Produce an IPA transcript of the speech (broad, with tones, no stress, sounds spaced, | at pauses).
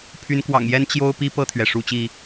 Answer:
pʰ y˨˦ n k w ɑ̰˨˩ ŋ j ɛ˦ n t͡ɕ j o˦ ʊ̯ p i˦ p ɤ˥˨ t̪ʰ ɥ ɛ˩ ʂ u˥˨ t͡ɕ i˥˨